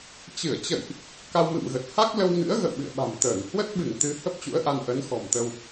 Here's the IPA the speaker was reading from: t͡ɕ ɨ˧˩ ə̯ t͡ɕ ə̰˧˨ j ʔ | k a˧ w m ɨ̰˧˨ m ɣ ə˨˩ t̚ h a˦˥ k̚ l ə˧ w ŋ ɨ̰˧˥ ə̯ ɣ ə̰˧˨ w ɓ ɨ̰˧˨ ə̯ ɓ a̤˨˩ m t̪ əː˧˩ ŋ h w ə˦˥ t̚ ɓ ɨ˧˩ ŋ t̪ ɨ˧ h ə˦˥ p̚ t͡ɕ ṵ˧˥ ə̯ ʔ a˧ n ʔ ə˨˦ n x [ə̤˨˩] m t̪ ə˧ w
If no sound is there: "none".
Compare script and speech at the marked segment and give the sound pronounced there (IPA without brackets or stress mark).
ɔ̤˨˩